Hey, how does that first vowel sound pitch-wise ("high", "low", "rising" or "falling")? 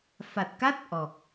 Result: low